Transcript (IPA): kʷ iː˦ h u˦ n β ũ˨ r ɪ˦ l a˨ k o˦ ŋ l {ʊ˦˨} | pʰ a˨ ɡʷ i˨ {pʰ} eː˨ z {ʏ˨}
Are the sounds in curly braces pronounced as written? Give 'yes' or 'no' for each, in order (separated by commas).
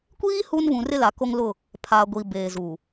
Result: yes, no, no